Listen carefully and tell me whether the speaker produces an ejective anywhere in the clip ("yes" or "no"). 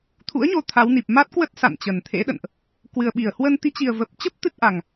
no